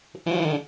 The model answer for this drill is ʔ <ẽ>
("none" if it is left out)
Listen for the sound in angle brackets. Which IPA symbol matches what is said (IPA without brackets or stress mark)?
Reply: ẽ